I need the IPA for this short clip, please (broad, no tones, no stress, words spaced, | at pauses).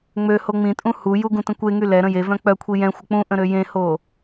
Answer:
ŋ͡mø hoŋ͡mĩtʼũ huju ɡũtə̃kʷeŋy lɛ ɾə̃jevœ̃ k͡pœkʷʰi jɛ̃xʷə k͡pũʔə̃ ɾøjẽho